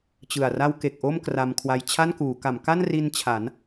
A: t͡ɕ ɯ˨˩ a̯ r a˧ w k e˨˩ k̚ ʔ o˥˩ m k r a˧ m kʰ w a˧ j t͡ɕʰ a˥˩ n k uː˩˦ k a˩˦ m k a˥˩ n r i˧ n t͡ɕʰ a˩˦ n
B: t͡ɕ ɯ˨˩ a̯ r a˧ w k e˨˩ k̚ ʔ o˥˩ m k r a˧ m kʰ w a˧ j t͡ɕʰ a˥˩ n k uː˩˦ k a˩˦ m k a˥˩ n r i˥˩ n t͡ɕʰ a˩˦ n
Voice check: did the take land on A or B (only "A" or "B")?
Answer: A